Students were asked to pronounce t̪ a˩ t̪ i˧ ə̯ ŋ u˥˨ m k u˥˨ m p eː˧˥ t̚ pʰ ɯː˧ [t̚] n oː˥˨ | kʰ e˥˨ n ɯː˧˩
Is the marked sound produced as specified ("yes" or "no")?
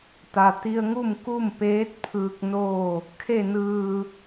no